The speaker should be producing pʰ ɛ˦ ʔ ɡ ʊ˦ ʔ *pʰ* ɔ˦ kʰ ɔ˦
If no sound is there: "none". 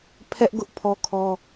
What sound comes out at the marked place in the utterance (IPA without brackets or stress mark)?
pʰ